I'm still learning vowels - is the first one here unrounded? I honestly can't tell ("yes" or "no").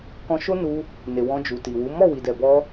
no